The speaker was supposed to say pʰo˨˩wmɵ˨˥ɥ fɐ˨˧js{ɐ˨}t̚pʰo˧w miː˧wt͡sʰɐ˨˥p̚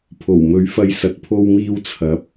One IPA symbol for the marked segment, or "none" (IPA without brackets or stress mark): ɐ˨